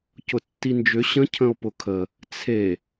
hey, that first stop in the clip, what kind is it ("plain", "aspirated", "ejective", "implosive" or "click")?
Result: plain